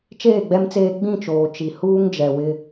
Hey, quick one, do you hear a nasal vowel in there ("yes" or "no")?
yes